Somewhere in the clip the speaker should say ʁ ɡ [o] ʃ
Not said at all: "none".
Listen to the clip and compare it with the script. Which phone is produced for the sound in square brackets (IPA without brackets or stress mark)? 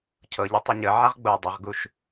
u